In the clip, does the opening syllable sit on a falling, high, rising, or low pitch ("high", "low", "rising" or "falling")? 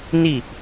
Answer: falling